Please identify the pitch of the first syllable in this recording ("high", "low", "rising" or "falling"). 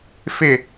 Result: falling